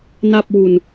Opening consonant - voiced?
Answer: yes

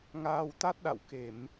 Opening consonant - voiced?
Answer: yes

